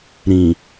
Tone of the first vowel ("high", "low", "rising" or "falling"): low